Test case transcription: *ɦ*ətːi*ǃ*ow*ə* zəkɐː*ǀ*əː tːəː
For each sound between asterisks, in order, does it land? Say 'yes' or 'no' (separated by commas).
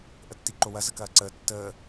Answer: no, yes, no, yes